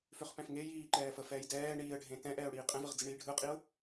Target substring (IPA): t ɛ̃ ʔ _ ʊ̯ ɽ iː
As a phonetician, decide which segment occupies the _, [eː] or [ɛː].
ɛː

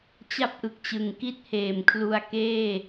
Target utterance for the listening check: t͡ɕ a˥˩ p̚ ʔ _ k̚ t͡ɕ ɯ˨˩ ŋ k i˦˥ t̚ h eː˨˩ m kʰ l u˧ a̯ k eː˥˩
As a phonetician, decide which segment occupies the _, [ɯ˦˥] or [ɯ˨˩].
ɯ˨˩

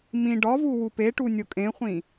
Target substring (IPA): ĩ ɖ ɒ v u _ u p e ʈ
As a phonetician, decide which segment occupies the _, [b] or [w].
w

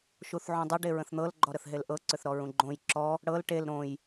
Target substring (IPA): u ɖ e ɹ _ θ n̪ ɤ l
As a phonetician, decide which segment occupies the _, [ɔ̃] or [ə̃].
ə̃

